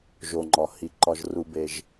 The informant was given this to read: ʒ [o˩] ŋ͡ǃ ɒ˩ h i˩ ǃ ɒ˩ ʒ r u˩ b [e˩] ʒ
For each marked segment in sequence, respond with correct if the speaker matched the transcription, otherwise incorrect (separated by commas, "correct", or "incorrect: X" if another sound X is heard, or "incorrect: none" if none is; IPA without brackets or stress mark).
correct, correct